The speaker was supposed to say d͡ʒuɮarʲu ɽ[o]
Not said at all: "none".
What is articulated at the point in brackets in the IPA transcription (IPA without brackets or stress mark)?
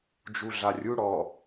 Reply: ɔ